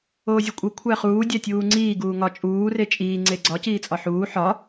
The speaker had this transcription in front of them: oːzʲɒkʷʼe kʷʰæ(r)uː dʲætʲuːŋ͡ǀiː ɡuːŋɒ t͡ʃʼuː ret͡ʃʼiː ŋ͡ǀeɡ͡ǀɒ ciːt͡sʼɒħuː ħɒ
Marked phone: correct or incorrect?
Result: incorrect